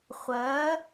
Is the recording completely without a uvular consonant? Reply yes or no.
no